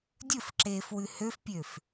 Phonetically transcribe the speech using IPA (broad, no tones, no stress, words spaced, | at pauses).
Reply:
dʲɵfǁeːf wʉhøfpʲøf